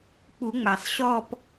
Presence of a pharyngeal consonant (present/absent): absent